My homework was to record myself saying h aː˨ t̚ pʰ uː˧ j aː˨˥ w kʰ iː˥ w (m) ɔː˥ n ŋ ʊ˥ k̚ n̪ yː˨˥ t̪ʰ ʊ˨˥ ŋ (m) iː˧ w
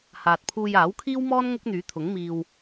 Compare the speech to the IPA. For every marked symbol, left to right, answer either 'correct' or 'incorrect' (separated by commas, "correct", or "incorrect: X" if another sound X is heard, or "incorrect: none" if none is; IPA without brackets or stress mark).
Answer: correct, correct